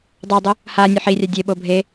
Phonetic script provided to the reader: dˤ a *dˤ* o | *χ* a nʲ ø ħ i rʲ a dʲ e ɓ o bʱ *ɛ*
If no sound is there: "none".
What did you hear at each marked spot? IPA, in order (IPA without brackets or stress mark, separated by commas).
dˤ, h, e